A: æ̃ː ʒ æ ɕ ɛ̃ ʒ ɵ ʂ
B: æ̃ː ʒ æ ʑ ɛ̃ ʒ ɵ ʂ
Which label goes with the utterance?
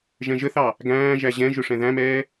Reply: B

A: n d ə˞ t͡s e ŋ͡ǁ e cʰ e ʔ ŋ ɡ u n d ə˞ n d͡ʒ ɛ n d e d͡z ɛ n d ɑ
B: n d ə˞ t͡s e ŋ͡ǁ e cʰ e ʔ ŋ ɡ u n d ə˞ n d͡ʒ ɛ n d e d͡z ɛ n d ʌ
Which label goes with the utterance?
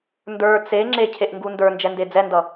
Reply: B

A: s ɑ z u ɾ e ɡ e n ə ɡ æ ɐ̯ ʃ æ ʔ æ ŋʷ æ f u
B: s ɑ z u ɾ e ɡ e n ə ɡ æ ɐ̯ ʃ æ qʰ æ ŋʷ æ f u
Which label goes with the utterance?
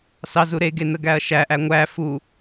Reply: A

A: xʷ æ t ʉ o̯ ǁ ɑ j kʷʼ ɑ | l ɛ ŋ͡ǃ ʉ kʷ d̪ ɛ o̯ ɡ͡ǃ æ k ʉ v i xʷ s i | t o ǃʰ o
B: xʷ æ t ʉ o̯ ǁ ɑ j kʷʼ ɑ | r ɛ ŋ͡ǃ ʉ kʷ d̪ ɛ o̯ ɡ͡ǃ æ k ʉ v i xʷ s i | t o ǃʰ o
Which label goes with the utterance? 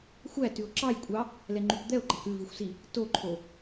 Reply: A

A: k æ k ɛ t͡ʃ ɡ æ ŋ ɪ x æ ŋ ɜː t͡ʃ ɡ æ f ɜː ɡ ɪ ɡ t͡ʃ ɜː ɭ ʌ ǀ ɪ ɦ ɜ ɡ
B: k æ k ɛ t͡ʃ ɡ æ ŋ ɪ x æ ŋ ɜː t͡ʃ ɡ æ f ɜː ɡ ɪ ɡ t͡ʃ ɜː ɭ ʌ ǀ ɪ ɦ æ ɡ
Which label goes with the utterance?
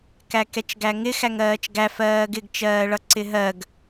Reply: A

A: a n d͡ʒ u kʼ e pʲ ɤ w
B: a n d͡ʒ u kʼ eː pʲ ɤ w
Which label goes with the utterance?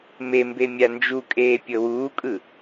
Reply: B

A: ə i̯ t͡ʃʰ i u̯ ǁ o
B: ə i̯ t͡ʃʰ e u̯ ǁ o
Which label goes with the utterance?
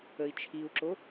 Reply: A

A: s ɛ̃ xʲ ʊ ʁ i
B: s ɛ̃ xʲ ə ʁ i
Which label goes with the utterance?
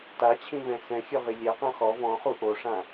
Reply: A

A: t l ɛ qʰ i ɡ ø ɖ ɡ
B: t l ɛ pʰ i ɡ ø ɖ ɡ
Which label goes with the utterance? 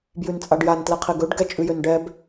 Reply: A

